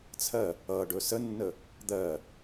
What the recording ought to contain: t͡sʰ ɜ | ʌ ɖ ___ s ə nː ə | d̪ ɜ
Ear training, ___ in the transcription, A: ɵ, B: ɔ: A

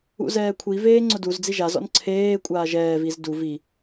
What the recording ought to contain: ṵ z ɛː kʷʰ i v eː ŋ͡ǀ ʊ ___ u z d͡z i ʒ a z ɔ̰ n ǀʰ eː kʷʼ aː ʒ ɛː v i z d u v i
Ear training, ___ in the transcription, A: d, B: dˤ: A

